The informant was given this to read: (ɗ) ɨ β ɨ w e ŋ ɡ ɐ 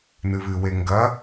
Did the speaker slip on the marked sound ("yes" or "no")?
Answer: yes